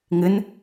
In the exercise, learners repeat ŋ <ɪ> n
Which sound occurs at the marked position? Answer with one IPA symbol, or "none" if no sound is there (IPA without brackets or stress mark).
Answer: ɪ